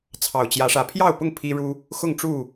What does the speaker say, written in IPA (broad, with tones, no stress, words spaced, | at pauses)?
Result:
t͡sʰɑ˨˩ʊ̯t͡ɕjä˨˦ ʂä˨˩pʰjɑ˥˨ʊ̯pʊ˥˨ŋ pʰi˦ɻu˦ | xʊ˥˨ŋʈ͡ʂu˥˨